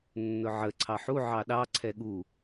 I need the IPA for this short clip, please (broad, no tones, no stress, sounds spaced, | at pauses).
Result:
nː ʊ ʕ ə ǀʰ ɑ ħ u ʕ ɑ ɗ ɑ ǀʰ ɛ ɠ u